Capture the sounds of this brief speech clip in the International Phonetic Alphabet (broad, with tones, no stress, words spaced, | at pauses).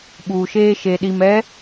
ɓuː˨ʃeː˦ʃe˨ɗi˨m ɛ˨˦